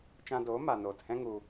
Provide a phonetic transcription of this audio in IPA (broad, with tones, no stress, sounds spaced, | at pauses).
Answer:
t͡ʃ ã˧ d oː˨˦ m a˨ n oː˨ t h ɛ̃˦ ŋ u˧